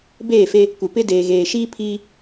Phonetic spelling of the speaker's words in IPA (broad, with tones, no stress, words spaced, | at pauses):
beː˦˨fe˦ | kʷɪ˨pɪ˦deː˨ ɣeː˨ʃiː˦ pʰiː˦